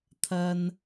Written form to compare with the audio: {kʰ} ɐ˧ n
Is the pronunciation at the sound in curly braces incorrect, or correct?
incorrect: t̪ʰ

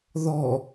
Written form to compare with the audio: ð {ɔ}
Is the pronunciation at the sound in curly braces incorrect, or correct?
correct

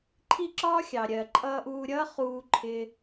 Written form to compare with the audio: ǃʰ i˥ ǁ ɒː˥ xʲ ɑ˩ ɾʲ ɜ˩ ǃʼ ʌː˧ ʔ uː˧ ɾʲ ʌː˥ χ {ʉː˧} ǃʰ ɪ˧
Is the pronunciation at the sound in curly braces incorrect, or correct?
incorrect: uː˧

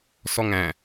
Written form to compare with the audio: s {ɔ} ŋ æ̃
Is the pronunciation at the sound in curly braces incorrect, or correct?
correct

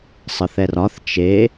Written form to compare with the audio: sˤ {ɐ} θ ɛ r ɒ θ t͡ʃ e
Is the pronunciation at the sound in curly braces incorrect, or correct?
incorrect: ə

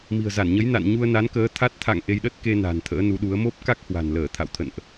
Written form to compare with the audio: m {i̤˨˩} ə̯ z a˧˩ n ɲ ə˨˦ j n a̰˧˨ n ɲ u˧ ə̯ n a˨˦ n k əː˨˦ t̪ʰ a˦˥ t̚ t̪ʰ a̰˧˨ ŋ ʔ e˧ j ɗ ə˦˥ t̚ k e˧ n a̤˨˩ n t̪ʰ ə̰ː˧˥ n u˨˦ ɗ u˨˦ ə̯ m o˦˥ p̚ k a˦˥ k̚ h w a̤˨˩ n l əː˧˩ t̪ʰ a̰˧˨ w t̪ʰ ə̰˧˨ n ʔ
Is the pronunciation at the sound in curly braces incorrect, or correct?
correct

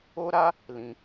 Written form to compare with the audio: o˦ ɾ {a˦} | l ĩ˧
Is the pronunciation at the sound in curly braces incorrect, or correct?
correct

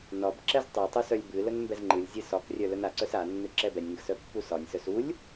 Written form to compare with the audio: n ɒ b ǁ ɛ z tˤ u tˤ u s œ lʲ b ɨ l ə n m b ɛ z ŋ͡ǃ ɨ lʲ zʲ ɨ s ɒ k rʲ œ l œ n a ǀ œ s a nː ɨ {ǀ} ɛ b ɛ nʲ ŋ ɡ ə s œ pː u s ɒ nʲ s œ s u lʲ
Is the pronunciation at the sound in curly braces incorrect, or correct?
incorrect: ǁ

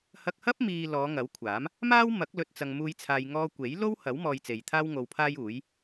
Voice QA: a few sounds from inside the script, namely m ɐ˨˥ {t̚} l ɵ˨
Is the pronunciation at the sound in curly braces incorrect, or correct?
incorrect: k̚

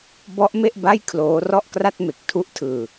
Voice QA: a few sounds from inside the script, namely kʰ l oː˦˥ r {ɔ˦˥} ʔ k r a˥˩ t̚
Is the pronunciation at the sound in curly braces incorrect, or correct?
incorrect: ɔ˥˩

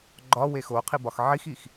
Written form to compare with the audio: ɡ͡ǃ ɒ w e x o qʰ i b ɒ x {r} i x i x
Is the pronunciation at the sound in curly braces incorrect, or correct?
incorrect: ʕ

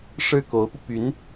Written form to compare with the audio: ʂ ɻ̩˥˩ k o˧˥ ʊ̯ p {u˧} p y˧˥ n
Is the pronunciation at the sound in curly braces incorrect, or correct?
correct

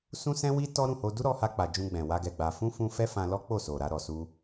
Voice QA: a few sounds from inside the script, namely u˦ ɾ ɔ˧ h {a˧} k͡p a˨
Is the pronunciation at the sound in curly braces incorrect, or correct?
correct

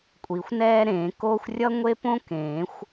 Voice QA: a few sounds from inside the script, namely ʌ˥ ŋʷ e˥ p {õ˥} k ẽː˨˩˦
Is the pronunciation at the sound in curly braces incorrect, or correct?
correct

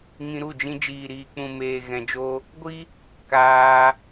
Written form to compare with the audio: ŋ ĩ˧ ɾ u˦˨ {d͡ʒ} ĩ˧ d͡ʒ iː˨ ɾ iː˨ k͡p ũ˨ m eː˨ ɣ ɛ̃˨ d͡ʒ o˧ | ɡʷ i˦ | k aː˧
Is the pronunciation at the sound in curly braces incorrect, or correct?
correct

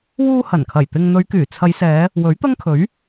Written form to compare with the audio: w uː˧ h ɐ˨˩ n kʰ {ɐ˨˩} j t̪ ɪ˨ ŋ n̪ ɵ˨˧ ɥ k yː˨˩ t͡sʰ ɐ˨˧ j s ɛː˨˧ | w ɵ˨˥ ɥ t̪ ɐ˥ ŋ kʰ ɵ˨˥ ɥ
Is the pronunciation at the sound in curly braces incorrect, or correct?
correct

